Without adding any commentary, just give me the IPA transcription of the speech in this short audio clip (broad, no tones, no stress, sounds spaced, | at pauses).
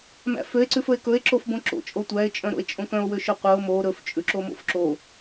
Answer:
m æ̰ f ø e̯ ǀ ʉ f ɵ e̯ k ɵ e̯ ǁ o f b õ ǁ o̰ t͡ʃʼ o tʷ æ e̯ t͡ʃʼ œ̃ ɾ o̰ e̯ t͡ʃʼ õ k œ̃ o̯ w ø ʃ ɵ qʷ œ o̯ m o ɾ ɵ f t͡ʃʼ ʉ ǁ o m o̰ f ǁ o